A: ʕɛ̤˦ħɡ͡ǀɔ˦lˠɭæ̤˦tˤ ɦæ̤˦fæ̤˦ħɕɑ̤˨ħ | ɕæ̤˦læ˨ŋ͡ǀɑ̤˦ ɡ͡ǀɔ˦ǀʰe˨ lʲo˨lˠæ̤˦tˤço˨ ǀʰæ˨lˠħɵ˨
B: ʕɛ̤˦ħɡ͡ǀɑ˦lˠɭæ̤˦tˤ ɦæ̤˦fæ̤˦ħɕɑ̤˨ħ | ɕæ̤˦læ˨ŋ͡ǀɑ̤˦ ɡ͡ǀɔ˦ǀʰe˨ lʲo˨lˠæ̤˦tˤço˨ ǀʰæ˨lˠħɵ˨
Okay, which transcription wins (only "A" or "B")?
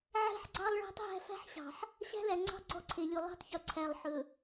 B